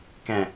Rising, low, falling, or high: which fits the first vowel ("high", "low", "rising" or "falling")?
low